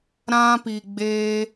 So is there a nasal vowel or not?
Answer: yes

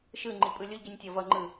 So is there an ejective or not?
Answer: yes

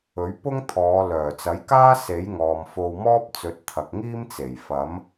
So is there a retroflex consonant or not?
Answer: no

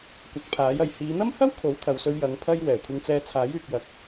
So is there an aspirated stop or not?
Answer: yes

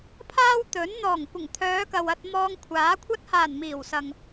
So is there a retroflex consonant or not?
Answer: no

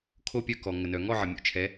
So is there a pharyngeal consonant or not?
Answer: yes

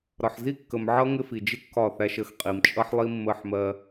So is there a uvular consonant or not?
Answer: yes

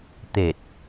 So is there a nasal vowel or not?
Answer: no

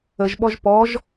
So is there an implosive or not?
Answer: yes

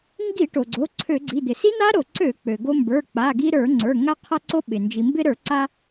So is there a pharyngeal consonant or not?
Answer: no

